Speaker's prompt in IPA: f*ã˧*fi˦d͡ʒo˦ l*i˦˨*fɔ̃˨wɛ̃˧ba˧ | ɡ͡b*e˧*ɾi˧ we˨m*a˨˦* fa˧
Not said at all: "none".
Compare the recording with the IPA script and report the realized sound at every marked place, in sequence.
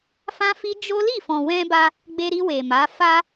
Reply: ã˦, i˦˨, e˧, a˨˦

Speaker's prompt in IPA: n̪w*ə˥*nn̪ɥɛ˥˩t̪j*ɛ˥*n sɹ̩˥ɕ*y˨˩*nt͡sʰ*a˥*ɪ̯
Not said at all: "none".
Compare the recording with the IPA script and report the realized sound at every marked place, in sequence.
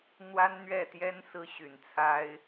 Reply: a˥, ɛ˥, y˨˩, a˥

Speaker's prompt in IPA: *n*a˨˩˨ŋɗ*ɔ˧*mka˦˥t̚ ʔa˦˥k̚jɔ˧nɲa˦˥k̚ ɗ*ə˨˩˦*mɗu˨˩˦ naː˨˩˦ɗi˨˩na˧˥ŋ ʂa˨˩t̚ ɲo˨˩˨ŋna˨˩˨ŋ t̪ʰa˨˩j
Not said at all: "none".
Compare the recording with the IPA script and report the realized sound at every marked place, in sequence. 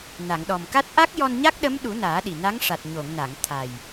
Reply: n, ɔ˨˩, ə˧˥

